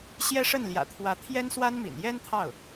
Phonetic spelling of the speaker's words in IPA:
ɕ j ɛ˥ ʂ ə˥˩ n l j ä̰˨˩ t̪ʰ w ä˧˥ t̪ʰ j ɛ˥ n s w a˥ n m ḭ˨˩ n j ɛ˥ n t̪ʰ ɑ˥˩ ʊ̯

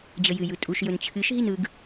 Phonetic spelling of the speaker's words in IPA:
d͡ʑ ə j ɨ j ɯ tʼ u ʃ j ɵ n t͡ɕʰ ɨ ʃ ɦ i n ɯ ɡ

